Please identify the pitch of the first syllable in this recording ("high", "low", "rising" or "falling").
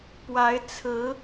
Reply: rising